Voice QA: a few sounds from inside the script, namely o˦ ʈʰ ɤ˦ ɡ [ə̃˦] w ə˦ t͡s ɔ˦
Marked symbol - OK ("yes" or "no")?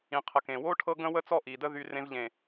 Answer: yes